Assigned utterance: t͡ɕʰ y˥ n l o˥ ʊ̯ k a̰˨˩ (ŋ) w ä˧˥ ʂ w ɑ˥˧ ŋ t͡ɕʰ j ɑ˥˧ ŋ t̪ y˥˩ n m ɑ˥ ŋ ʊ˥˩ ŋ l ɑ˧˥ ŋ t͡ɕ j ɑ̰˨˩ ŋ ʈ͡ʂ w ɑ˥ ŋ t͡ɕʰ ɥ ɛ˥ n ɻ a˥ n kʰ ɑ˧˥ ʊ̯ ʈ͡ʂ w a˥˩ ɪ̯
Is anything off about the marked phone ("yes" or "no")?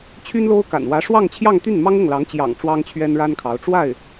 yes